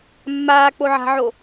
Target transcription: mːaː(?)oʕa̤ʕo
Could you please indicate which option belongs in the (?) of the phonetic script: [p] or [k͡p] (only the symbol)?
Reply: k͡p